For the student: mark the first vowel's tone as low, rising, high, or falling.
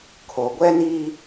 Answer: low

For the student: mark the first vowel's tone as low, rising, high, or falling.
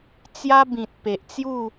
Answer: high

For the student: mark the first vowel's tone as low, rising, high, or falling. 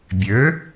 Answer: rising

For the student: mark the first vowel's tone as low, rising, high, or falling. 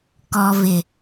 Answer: low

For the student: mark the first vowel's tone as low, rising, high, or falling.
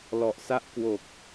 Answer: low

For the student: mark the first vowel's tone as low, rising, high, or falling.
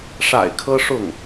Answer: low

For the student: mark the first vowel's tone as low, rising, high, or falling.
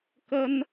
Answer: high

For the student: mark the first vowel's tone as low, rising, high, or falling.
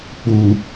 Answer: low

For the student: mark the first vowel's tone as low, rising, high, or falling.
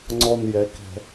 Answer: low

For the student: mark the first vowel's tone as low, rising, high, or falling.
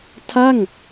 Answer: falling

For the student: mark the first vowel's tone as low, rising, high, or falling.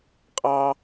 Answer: high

